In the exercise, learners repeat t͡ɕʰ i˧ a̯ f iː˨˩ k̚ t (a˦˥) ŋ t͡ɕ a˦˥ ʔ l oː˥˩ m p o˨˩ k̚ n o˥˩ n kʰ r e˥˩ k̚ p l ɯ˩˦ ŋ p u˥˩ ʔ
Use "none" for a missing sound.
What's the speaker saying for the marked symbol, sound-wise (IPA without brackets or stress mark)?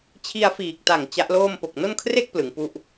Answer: a˨˩